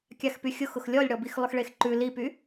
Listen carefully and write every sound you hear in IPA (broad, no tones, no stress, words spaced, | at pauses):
kʲaxpyxʲʊxʊx lʲɔlʲɽɔbix lˠʊxɭexǃʉ lipy